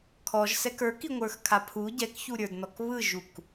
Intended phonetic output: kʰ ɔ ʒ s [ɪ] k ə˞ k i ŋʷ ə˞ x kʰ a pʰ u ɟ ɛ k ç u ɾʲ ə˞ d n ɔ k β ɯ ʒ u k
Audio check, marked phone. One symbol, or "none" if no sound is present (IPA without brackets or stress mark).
ɛ